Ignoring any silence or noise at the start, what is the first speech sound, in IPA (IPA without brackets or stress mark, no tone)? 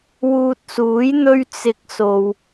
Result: w